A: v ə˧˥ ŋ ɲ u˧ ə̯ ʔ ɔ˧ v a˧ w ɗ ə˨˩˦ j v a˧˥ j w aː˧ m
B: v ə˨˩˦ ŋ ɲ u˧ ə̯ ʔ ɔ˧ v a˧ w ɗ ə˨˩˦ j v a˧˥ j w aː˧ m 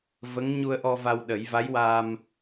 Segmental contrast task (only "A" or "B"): A